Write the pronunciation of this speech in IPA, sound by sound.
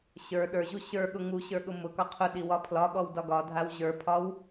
ɕə˞ ɗə˞ʑu ɕə˞ɠʊ ŋuɕə˞ ɠʊmʊkɒ qʰʊɗi wɒpʰlɒɠɔw dɒɡɒdʱaw ʑə˞pʰɒw

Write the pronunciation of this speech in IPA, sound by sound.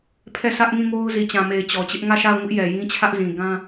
pʰɛ˦˨sä˦ʔŋĩ˦˨ŋo˦ʊ̯ zi˨t͡ɕã˨me˨ɪ̯ t͡ɕɔ˨t͡ɕɪ˦ʔ ŋä˦˨ʃa˦˨ʊ̯ŋʊ˦ʔ jɛ˨jĩ˦t͡ɕʰä˦ʔ zĩ˨ ɡã˦

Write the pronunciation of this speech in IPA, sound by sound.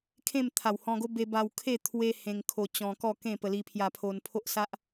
kʰẽ˥˧mt̪ʰa˨˩whɔ̃˧ɡo˦ be˧ba˧wkʰe˥˧ t̪ʰwe˦ hẽ˧ŋkʰo˧ t͡ɕɔ̃˧kɔ˥˧ kẽ˥˧pə˧ li˧pʰja˧pʰo˧n pʰo˦ʔsa˦ʔ

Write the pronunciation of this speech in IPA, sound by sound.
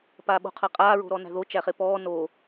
paːɓo̤qʰaqʼaː ɹo̤ɾɔnæ̤ðo t͡ʃæχepɔː no

